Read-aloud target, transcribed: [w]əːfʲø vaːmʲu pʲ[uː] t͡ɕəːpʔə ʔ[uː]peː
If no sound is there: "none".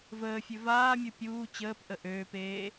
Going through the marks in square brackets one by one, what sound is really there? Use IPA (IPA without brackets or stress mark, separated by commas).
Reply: v, uː, øː